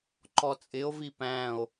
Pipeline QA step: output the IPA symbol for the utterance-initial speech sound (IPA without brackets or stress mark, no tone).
ǃ